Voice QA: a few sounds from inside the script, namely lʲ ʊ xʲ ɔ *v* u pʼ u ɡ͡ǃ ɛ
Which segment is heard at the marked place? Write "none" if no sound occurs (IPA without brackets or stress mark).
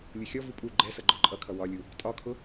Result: v